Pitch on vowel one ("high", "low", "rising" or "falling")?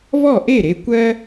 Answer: falling